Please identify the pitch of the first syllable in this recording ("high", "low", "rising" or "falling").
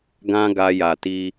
high